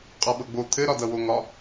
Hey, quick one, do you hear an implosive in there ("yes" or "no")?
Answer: yes